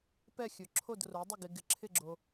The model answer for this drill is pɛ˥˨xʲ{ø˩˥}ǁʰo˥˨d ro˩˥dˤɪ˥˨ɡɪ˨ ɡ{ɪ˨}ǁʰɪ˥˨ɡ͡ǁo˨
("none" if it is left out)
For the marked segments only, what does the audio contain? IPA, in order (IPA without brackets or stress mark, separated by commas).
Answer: ɵ˩˥, ɪ˨